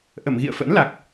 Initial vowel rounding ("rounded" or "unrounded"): unrounded